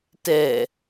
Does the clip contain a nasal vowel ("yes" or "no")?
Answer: no